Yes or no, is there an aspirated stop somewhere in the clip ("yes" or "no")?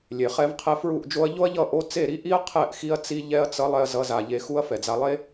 yes